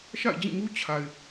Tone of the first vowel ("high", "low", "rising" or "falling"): falling